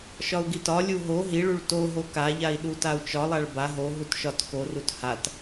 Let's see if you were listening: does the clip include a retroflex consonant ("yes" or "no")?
yes